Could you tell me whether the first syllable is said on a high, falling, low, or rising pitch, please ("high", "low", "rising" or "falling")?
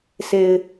low